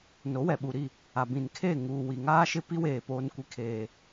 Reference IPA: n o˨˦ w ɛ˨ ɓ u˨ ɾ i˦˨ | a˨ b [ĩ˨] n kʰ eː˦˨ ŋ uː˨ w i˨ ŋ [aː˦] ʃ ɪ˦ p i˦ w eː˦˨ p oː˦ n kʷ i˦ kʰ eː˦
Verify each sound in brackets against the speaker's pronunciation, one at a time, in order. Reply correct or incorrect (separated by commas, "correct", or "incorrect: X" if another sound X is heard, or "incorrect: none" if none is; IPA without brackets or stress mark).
correct, correct